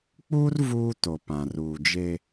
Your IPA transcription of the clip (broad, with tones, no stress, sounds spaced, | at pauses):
k͡p uː˦ r v uː˦ t o˨ p ã˨ r uː˨ d͡ʒ e˦